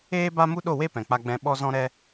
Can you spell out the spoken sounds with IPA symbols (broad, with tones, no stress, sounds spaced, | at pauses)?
eː˦ b a˦ m u˦ ɗ o˦˨ w e˦ p ɛ̃˨ k͡p a˧ ɡ͡b ɛ̃˧ ɓ ɔ˦ z ɔ̃˦ ɾ ɛ˦